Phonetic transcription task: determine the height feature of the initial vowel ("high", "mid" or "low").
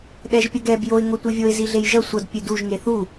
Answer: mid